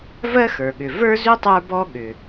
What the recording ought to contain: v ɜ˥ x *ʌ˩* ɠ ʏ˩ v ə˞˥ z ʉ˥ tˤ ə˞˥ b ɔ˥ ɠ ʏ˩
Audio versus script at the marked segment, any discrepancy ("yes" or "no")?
yes